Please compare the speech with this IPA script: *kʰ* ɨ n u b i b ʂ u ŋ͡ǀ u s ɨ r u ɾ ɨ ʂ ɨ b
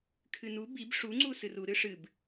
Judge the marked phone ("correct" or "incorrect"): correct